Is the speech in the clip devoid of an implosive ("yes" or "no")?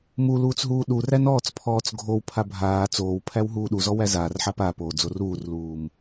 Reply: no